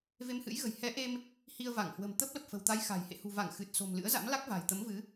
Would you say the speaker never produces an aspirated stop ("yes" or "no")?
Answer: yes